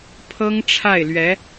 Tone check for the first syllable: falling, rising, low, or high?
high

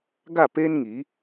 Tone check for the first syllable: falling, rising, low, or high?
falling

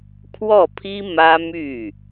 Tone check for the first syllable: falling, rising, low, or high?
falling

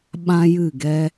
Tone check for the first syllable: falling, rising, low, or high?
high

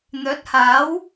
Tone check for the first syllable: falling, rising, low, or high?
rising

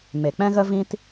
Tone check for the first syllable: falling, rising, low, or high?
low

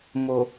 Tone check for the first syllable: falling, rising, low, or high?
low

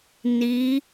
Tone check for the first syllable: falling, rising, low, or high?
rising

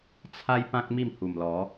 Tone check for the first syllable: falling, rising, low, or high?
high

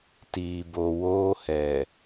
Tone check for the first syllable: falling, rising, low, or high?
low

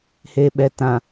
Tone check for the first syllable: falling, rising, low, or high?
low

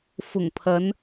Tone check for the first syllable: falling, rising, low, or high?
low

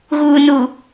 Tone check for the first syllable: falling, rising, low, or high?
low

